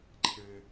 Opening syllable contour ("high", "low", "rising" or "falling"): high